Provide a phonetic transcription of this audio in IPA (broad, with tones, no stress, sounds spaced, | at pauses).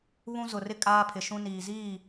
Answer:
β ũ˦ z ʊ˨ r ɪ˦ kʼ aː˦ pʰ ɪ˨ ʃ ũ˦ n iː˨ z iː˦˨